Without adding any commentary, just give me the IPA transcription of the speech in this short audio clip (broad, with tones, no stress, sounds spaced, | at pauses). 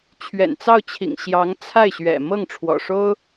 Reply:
t͡ɕʰ ɥ ɛ̰˨˩ n t͡s ɑ˥˩ ʊ̯ t͡ɕʰ ḭ˨˩ ŋ ɕ j ɑ˧˥ ŋ t͡sʰ a˥˩ ɪ̯ ɕ ɥ ɛ̰˨˩ m ɤ˥˩ ŋ ʈ͡ʂʰ w ɔ̰˨˩ ʂ o˥ ʊ̯